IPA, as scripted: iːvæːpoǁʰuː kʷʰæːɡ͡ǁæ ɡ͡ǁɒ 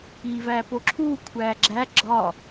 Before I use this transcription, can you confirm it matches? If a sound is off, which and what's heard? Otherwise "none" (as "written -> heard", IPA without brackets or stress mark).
none